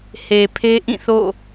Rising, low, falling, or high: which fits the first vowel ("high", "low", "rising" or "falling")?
low